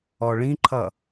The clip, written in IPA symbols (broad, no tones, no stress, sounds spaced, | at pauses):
ɔ ɭ ĩ ǃʰ ʌ